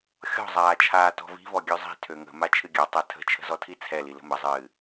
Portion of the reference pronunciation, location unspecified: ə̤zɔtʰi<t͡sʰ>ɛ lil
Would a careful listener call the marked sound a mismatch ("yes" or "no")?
no